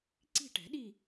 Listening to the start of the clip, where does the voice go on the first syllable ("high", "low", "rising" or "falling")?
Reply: falling